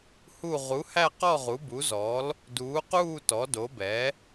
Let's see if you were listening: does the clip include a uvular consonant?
yes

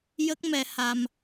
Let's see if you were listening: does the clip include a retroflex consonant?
no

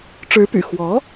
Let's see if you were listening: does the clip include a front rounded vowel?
yes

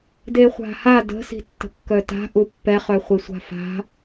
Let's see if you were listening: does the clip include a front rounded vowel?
yes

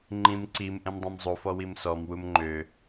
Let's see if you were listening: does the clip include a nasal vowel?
yes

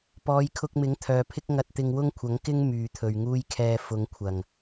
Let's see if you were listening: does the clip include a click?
no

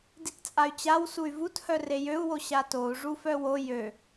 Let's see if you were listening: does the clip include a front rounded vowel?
yes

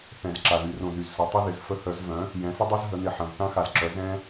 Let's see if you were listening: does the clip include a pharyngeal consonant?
yes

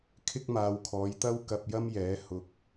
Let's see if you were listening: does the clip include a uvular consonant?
no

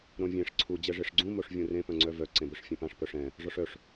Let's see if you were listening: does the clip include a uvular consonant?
no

